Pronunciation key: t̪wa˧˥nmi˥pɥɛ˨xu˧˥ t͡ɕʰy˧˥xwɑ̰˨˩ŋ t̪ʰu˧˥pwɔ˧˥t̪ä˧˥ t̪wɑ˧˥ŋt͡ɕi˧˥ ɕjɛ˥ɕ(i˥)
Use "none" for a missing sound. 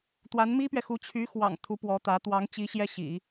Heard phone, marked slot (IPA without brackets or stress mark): ḭ˨˩˦